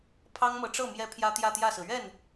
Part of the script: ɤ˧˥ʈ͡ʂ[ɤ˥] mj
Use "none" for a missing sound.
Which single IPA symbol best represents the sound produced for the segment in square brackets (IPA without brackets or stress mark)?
ɤ˥˩